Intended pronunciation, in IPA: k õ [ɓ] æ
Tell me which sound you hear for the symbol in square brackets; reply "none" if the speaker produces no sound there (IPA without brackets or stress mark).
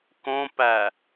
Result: p